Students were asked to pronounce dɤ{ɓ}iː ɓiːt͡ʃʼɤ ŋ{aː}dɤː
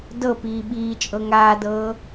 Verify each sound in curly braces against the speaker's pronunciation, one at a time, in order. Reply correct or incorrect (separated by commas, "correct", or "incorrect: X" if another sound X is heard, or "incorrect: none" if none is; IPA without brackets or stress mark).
incorrect: p, correct